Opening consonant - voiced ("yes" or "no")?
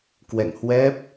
no